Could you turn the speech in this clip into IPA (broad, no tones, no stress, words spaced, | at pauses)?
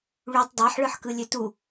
ɭytˤ dˤɑħɭɯħkɯlʲø tu